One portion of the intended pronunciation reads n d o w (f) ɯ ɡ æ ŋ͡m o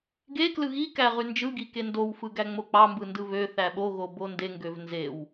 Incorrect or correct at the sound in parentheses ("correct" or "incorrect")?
correct